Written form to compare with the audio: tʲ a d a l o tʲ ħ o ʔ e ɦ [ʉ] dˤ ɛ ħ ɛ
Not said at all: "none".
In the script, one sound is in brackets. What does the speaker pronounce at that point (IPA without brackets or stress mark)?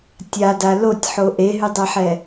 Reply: ʉ